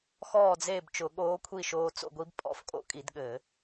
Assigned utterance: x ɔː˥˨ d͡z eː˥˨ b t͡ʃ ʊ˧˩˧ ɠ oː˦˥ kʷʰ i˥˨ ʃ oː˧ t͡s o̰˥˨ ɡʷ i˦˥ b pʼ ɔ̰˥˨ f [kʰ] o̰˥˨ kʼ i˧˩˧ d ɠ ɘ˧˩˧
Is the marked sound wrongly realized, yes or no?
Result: yes